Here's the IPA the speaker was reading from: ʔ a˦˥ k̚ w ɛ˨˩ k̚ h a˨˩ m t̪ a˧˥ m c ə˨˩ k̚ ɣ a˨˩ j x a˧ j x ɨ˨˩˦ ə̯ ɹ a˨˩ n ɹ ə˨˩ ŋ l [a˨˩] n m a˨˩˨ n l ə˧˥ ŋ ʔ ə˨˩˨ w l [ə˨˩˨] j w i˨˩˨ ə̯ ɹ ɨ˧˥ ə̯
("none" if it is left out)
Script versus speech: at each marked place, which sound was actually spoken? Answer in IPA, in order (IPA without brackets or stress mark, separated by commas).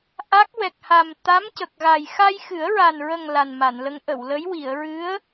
a˨˩, ə˧˥